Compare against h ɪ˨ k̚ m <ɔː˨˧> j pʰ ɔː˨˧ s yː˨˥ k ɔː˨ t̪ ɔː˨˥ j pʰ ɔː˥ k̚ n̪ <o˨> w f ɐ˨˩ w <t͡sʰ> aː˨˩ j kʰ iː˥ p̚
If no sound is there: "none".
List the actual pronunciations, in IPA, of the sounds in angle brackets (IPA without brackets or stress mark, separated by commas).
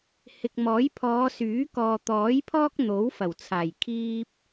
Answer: ɔː˨˥, o˨˥, t͡sʰ